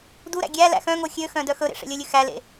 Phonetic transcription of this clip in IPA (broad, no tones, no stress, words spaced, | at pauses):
duɾæ̰ ɡʲæ læ̰xœ̃ŋo xʲøxœ̃ dœxɵɾḛ ʂḛlʲɵlʲʉ xælḛ